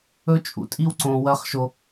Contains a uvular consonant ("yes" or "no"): yes